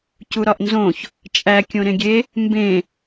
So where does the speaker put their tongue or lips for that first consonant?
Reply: palate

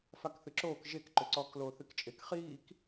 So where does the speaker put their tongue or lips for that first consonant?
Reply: lips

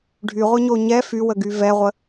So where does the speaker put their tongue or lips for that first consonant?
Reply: retroflex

